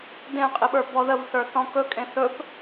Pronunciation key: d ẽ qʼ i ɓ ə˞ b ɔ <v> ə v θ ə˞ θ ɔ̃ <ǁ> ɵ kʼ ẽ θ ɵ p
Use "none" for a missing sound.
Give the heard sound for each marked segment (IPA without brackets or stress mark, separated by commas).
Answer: ð, k